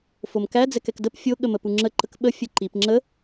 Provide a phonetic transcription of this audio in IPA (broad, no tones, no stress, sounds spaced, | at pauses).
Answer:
f o m k æ d͡z ɛ k ɛ k d ə p fʲ o ɠ ə m ə p u ŋ͡ǁ ə ǃ ə k ɓ ə fʲ ə ǃ i p ŋ͡ǁ ə